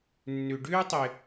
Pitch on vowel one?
low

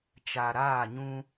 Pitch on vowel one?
low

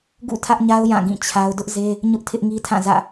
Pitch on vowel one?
falling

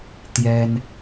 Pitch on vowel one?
high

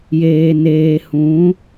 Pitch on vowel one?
low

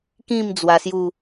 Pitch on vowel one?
falling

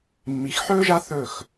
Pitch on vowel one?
rising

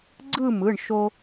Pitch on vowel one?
falling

